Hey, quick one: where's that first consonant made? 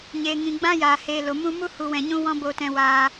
palate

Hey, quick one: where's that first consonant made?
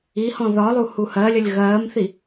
throat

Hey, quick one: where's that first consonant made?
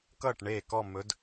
velum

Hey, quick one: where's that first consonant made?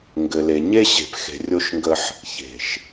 velum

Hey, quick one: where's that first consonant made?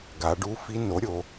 velum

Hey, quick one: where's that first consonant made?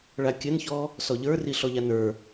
retroflex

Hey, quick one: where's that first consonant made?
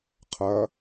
uvula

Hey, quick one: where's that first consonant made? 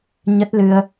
palate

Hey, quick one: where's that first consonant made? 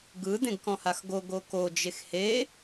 velum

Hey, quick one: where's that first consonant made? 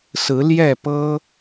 tongue tip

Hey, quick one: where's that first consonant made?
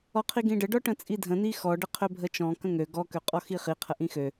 uvula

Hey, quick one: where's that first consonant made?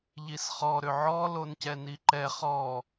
palate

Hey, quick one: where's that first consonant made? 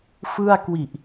lips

